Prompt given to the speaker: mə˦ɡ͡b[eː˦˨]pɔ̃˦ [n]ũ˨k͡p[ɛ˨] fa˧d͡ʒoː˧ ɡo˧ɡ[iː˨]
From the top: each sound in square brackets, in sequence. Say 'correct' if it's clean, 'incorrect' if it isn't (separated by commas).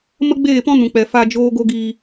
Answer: correct, correct, correct, correct